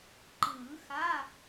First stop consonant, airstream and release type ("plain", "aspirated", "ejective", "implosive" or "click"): click